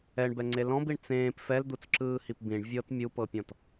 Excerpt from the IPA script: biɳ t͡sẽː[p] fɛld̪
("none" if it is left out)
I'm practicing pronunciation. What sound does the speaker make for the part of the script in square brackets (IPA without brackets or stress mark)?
p